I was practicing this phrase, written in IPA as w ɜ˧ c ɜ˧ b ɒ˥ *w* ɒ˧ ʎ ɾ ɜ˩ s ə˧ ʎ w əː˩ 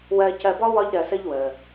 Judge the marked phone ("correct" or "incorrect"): correct